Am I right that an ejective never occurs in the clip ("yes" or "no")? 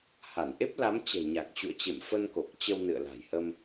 yes